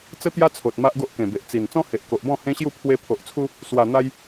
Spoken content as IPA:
t͡s ə˦ t̪ j a˦ t͡sʰ o˨ t̚ m a˦ ʔ ɡ o˦ ʔ k ẽ˨˩ b e˨ ʔ t͡s i˨˩ n t͡s ɔ̃˦ h e˨ ʔ k o˨ ʔ b ɔ̃˥˧ h ẽ˦ ɕ j u˥˧ pʰ w e˧ pʰ o˨ ʔ t͡sʰ u˧ | s w a˨˩ n̪ a˧ j

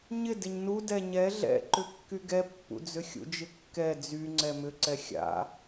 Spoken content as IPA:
ɲ ɪ d ɪ ɲ n u d ɛ ɲ ɛ ɮ ɛ̰ ǃ ʏ kː y ɡ ɛ pː ṵ d͡z ʏ xʲ ṵ d͡ʒ ɪ kː ɛ d͡z y ŋ͡ǀ ɛ m ʏ ǀ ɛ xʲ a̰

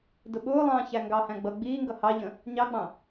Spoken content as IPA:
d ʊ ɓ ʊː lˠ ɑ̃ː ç æ ŋ ɡ ɑ h æ̃ ɡ͡b ʌ ɡ͡b iː ŋ ɡ ʌ h ɑ ʎ ə̃ | ɲ ɑ ɡ͡b ɑ̃

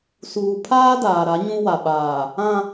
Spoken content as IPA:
s uː˨ pʰ aː˦ d aː˨ ɾ a˨˦ ɲ ũ˦ w a˨ ɓ aː˨ | ã˦

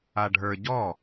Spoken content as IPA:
a ɖʱ ə˞ ɟ ɔ

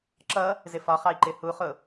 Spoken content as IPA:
ǁ ʌ | z ɪ f ɒ χ ɑ i̯ ǃ ɪ h u χ ʊ

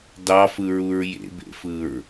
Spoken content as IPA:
d ɑ f ɯ ɹ u ɹ j ḛ b ḛ f ɯ ɹ

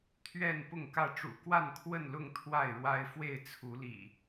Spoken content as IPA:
t̪ʰ ɥ ɛ˥˨ n p ʊ˥˨ ŋ k ä˥˨ ʈ͡ʂ ṵ˨˩ k w a˥˨ n kʰ w ə˥˨ n l ʊ˥˨ ŋ t̪ʰ w a˥˨ ɪ̯ ɻ w a˦ ɪ̯ f w e˥˨ ɪ̯ t͡sʰ u˨˦ l ḭ˨˩

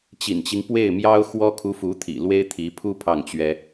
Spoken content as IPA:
t͡ɕ ḭ˨˩ n t͡ɕ i˦ ŋ p w e˥˩ ɪ̯ m j ɑ˥ ʊ̯ x w ɔ˥ kʰ u˧˥ f u˧˥ t̪ʰ ḭ˨˩ l w e˥ ɪ̯ t̪ʰ i˧˥ pʰ u˥ pʰ ɑ˥˩ ŋ t͡ɕ ɥ ɛ˥

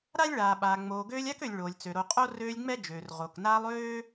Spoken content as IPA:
ɾ a˥ lʲ ɭ aː˩ ɓ aː˩ ŋ͡m oː˩ ɡ øː˦ lʲ a˥ k ø˨ lʲ ɭ oː˩ lʲ t͡s ø˩ ɾ o˨ qʼ o˥ r øː˦ lʲ ŋ͡m ɛ˥ d͡ʒ øː˩ r ʁ o˩ k n aː˦ lˠ øː˥

